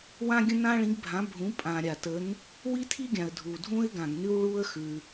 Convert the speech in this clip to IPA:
w ã˥ ɡʲ ə̃˥ n ã˥ ɭ ĩ˨˥ ɡ bʱ ã˨˥ bʱ ũ˨˥ pʼ ã˩ ɾʲ a˩ t ə˨˥ n | w i˥ tʰ i˥ ɡʲ ã˩ ə̯ dʱ u˩ dʱ ũ˥ ɪ̯ ɡ ã˩ ɡ n ʉ˥ w ɭ u˥ ə̯ x ʉ˩

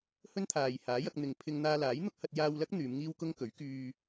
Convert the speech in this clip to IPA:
h ɵ˥ n t̪ʰ aː˨ j h aː˨˥ j ɐ˧ k̚ n̪ ɪ˨ ŋ pʰ ɪ˧ ŋ n̪ aː˧ l aː˨˥ j n̪ ʊ˥ k̚ h ɐ˧ t̚ j aː˧ w l ɐ˥ k̚ n̪ yː˨˧ m ŋ iː˥ w k ʊ˥ ŋ k ɵ˨˥ ɥ k yː˧

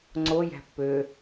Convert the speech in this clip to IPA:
ŋ͡ǀ o j æ̤ pː øː

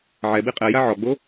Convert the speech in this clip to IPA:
ʕ ɛ b i qʼ ɛ j a ʕ ɔ ɡ͡b o

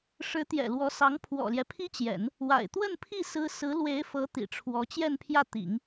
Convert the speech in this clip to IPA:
ʂ ɻ̩˧˥ t̪ j ɛ̰˨˩ l w ɔ˧˥ s ɑ˧˥ ŋ pʰ w ɔ̰˨˩ l j ɛ˦ pʰ i˥ t͡ɕ j ɛ̰˨˩˦ n | w a̰˨˩ ɪ̯ t̪ w ə˥˧ n pʰ i˥˩ s ɹ̩˥ s ɹ̩˧˥ l w e˧˥ ɪ̯ f ɤ˧˥ t̪ ḭ˨˩ ʈ͡ʂʰ w ɔ˧˥ t͡ɕ j ɛ˥˧ n pʰ j ä˥˩ t̪ ḭ˨˩˦ ŋ

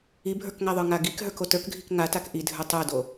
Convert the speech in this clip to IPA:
i bʱ ə˞ k ŋ a ðˤ ə˞ ŋ a ɡ i k ɦ ə˞ k o t ə˞ k ɡʱ i k ŋ a t a k ʔ i dʱ ə˞ tˤ ə˞ d o

